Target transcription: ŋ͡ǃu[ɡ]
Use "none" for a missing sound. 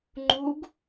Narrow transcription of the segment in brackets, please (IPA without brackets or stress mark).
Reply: ɡ